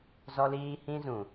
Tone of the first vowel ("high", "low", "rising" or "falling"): high